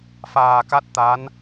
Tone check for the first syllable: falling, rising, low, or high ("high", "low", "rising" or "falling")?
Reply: low